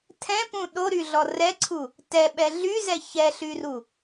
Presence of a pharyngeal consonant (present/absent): absent